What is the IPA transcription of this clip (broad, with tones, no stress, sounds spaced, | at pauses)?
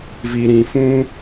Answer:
v i˨ ɾ ĩ˨ f ũ˦